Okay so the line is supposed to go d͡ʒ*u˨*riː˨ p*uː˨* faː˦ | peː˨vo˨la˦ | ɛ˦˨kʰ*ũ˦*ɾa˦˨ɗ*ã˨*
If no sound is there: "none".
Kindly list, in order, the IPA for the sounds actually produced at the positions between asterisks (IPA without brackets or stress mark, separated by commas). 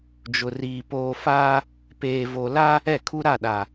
ʊ˨, oː˨, u˦, a˨